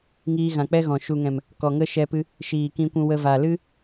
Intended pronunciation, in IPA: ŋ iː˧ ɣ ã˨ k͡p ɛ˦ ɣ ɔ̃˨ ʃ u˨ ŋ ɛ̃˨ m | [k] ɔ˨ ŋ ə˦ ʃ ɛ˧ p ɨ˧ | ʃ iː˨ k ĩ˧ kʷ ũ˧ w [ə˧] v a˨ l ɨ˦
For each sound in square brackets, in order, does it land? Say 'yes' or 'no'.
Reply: yes, yes

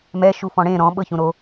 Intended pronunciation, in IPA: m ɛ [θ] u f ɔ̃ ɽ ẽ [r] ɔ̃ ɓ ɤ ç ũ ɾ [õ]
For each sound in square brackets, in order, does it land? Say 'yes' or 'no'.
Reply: no, no, no

